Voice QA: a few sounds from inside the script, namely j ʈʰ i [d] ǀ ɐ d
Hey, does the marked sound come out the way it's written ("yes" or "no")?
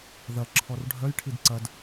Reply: yes